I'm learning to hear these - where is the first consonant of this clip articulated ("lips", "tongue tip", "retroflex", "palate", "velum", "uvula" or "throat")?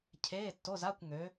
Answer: palate